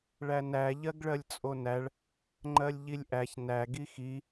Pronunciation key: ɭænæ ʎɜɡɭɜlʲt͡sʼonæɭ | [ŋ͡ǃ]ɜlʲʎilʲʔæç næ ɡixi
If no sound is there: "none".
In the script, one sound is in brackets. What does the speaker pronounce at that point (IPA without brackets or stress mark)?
ŋ͡ǃ